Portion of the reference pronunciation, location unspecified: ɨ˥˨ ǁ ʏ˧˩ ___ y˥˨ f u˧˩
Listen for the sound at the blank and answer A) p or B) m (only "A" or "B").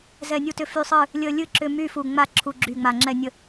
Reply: B